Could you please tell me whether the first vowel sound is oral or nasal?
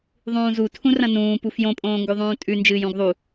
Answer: nasal